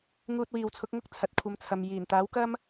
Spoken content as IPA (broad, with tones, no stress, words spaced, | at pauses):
ŋuː˧t̚wiː˨wt͡sʰʊ˨˥k̚ŋʊ˥k̚ t͡sʰɐ˨t̚kʷʰɐ˧mt͡sʰɐ˨m jiː˨˩nt̪aː˨˥wkɐ˥m